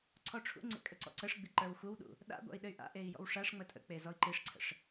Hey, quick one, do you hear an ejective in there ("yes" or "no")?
yes